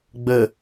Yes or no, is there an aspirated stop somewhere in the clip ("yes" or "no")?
no